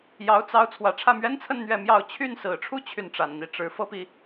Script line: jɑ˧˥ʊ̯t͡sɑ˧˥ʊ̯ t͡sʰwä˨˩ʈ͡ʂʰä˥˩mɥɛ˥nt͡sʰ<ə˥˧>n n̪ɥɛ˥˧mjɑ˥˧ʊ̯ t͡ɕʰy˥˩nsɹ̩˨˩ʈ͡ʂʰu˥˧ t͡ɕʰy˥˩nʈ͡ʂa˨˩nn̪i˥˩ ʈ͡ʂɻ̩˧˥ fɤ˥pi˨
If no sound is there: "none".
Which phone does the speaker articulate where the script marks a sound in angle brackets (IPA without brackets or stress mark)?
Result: ə˥˧